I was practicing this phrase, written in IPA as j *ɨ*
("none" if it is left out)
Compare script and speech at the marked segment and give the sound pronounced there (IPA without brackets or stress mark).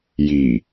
i